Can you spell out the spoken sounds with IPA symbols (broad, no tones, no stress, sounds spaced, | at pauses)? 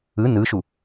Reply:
ɯ n ɯ ʃ u